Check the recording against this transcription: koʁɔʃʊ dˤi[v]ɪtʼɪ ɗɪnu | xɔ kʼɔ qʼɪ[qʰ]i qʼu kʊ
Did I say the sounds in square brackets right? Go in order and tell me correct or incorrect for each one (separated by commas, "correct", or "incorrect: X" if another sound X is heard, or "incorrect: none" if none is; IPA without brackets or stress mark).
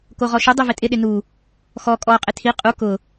correct, incorrect: tʰ